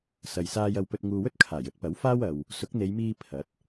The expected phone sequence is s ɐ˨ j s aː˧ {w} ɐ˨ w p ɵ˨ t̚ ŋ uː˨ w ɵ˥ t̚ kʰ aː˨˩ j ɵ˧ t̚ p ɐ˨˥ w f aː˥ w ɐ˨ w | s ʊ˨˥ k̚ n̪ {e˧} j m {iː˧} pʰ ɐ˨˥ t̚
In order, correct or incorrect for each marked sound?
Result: incorrect: j, incorrect: e˨˧, correct

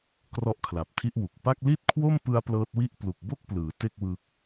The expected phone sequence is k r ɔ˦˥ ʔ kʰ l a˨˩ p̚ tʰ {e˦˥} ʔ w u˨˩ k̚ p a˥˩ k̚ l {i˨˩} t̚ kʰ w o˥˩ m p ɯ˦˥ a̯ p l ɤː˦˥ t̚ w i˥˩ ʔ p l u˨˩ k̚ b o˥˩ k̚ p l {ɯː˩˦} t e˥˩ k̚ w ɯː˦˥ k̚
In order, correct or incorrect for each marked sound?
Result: incorrect: i˦˥, incorrect: i˥˩, correct

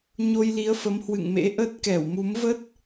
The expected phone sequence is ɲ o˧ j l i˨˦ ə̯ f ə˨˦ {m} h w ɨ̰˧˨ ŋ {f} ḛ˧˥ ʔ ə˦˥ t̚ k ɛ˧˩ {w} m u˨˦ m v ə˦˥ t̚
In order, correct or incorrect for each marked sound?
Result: correct, incorrect: m, correct

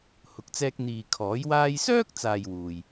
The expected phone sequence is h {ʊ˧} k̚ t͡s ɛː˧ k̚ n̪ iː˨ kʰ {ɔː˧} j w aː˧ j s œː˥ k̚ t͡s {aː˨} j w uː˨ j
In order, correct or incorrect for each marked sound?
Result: incorrect: ʊ˨˥, incorrect: ɔː˨˥, correct

